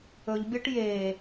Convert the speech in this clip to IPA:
ɵ ʎ bʲ ɔ ʈ j e

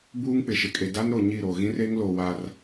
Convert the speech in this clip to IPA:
b uː˦ ŋ k͡p ɪ˨ ʃ ɪ˨ kʼ e˨ d a˦ n ɾ o˨ ɲ i˦˨ ɾ o˨ ɣ ĩ˦ r e˦ ŋ l o˨ w a˦ r

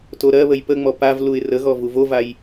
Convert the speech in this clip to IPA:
t o ɾ ɜ β ə j p ə ŋ͡m ɔ p a v l u ɪ̯ r ə ɣ ɔ v u v o v a j

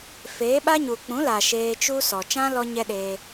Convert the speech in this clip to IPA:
f eː˨˦ ɓ a˦ ɲ u˨ k͡p ũ˨˦ l a˨ ʃ eː˧ t͡ʃ u˦ s ɔ˨ t͡ʃ ã˦ l ɔ˧ ɲ ɛ˦ ɗ eː˧

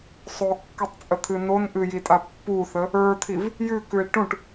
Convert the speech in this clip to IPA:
sˤ o kː u tˤ t͡sʼ ə t̪ʰ ɨ n o n ʔ ɨ j i tʼ a pː u θ ə | ə˞ t̪ʰ i v | j ʉ k ʉ e̯ ʈ ũ ʈ

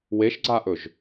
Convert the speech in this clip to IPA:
w e ʃ ɡ͡ǀ a ʔ ɵ ʒ

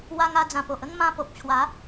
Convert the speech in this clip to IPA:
w a˧ ŋ a˧ d͡z ã˨˩ p o˨ ʔ ə˥˧ ŋ m ã˧ p o˨ p̚ t͡ɕʰ w a˨˦

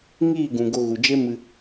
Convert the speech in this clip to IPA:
ŋ iː˦˨ ɡ ũ˨ ɡ o˧ ɣ u˨ d͡ʒ e˦ m ɨ˧

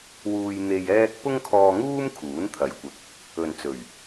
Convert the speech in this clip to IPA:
w uː˧ j n̪ e˧ j ɛː˥ k̚ p ʊ˥ ŋ kʰ ɔː˧ ŋ uː˥ m kʰ uː˨˥ n t̪ʰ ɐ˨˧ j kʷ ɪ˨ k̚ | ɵ˨ n t͡s ɵ˨˩ ɥ

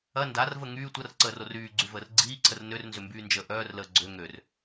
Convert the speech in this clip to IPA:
ɐ n d a r v ə ŋ yː tʷ ɐ r ǀ əː r o r yː ɡ͡ǀ y v əː r ɡ͡ǀ iː ǀʰ ə r n ø r n z ʏ m b yː n d͡ʒ əː ʔ œː r l əː ɡ͡ǀ ø ŋ ø r

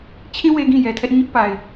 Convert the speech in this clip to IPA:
t͡ɕʰ ĩ˦ w e˦ ɡ ĩ˦˨ j ɛ˨ tʰ ɛ˦ ʔ ɲ ʊ˦ ʔ p a˨ ɪ̯

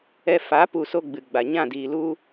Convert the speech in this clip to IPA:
ɛ˧ f a˨˦ p u˧ s o˦ ɡ͡b ɨ˨ ɡ͡b a˨ ɲ ã˦˨ d iː˨ l u˦

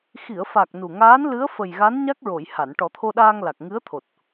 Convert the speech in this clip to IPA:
x i˨˩˨ ə̯ f a˨˩ k̚ n u˨˩ ŋ aː˧˥ n l ɨ˧˥ ə̯ f ə˨˩ j ɣ a˧˥ n ɲ a˦˥ k̚ ɹ o˨˩˨ j h a˨˩˨ n ʈ ɔ˨˩˦ t̪ʰ o˧ ɗ aː˧ ŋ l a˨˩ k̚ ŋ ɨ˧˥ ə̯ t̪ʰ o˨˩ t̚

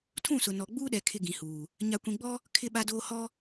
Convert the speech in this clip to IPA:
tʰ ũ˦˨ s ʊ˨ n ɔ˨ ɡ͡b uː˦ ɗ ɛ˨ kʰ ɪ˦ ɡ ĩ˨ h uː˨ | ɲ a˨ kʷ ĩ˨ ɡ͡b ɔ˦ | kʰ ɪ˦ ɓ a˦ d oː˦ h ɔ˦

